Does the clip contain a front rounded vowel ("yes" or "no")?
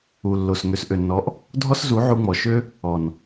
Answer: yes